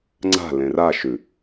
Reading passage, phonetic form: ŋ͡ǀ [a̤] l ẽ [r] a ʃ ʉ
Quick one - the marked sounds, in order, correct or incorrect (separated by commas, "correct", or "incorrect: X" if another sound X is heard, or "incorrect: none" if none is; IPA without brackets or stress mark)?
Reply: correct, correct